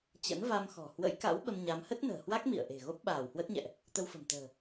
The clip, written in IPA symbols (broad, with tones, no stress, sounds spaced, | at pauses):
t͡ɕ ə̰˧˥ n v a˧ m x ɔ̤˨˩ h w ə̰˧˥ j k a̰˧˥ w ɓ ə˧ m ɲ a˨˦ m h ə˦˥ t̚ n ə̤ː˨˩ h w a˦˥ k̚ m ḭ˧˨ ə̯ ʔ e̤˨˩ ɣ o˦˥ p̚ ɓ aː˧˩ w h w ə˦˥ t̚ ɲ ɛ̰˧˨ ʔ | t̪ ə˧ w f ə̤˨˩ m t̪ ə̤ː˨˩